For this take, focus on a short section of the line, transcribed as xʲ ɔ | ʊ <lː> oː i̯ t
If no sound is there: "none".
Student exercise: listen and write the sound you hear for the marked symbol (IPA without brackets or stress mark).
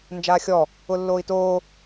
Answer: lː